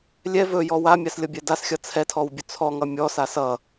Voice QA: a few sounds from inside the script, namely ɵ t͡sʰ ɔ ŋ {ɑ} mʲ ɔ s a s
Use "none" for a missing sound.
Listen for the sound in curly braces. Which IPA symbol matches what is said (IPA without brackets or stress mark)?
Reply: ʌ